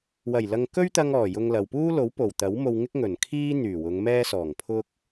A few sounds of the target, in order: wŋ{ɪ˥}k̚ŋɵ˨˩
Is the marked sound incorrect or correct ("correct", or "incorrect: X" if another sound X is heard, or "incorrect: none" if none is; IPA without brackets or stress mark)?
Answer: correct